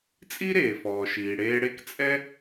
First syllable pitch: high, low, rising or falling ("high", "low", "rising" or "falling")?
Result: high